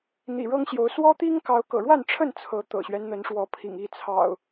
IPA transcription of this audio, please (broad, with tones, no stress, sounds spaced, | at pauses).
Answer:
n̪ ḭ˨˩ ɻ ɤ˦ ŋ ɕ j o˨˦ ʊ̯ s w ɔ˦ t̪ i˦ ŋ k ɑ˨˦ ʊ̯ k ɤ̰˨˩ ɻ w a˥˨ n ʈ͡ʂʰ ə˥˨ n t͡sʰ ɤ˨˦ t̪ ɤ̰˨˩ ɕ ɥ ɛ˦ n n̪ ə˨˦ n ʂ w ɔ˨˦ pʰ ḭ˨˩ ŋ i˥˨ t͡sʰ ɑ̰˨˩ ʊ̯